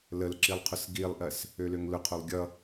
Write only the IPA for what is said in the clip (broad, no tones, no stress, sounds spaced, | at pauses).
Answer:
l ə l ǁ i lˠ qʰ ʊ s ɡ i lˠ ʔ ɜ s | ø l ø ŋ l ʊ qʰ o lˠ ɡʲ ʌ